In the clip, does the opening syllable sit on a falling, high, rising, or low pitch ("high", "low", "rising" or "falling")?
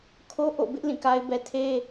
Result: high